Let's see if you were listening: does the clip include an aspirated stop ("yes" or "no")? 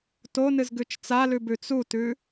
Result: no